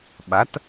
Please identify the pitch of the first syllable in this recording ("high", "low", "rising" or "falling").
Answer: rising